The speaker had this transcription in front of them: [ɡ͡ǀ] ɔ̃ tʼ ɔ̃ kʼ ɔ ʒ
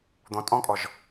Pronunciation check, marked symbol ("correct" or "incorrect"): incorrect